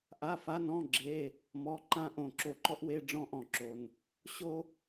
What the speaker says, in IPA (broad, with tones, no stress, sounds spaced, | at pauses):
ʔ a˧˥˧ f a˧˥˧ n ɔ̃˧˥˧ ɡ͡ǁ e˧˥˧ | m ɔ˧˥˧ ǃ ã˥ ʔ õ˧˩ ǁ o˧˩ ǃ ɔ˥ ʔ w e˧˥˧ ɖ͡ʐ ɔ̃˥ ʔ ɔ̃˧˩ ǁ o˩ n | ɕ o˥